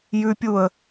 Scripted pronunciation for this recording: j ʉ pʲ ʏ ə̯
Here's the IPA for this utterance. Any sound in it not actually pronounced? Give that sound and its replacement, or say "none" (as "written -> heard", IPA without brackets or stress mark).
ʏ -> u